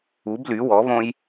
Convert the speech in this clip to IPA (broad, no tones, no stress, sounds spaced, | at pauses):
u b l y w ɔ β õ j